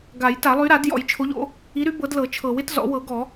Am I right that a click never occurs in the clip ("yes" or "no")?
yes